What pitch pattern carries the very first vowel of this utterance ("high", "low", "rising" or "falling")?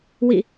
falling